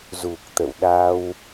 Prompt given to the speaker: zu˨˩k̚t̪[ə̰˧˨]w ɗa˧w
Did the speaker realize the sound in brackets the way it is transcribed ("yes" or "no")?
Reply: yes